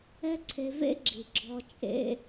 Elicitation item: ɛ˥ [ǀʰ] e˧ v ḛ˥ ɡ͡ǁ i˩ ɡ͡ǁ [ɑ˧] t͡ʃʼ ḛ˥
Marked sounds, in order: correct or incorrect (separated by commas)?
correct, incorrect